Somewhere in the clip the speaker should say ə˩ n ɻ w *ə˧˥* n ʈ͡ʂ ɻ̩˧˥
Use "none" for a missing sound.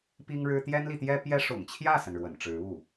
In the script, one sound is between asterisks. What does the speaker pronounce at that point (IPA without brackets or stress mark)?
ə̰˨˩